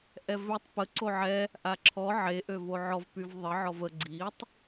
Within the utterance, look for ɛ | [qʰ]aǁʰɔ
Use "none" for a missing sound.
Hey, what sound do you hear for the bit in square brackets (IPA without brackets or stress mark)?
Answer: ʔ